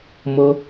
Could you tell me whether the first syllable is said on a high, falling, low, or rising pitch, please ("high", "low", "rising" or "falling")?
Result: high